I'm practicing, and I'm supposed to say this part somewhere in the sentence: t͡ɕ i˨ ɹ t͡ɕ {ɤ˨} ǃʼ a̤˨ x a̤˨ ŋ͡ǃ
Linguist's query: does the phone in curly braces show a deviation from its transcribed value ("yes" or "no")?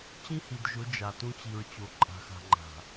yes